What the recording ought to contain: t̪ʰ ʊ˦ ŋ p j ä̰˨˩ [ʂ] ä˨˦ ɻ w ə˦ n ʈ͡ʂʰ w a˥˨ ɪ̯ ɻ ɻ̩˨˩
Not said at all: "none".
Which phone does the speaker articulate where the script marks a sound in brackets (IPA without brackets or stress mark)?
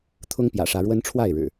ʂ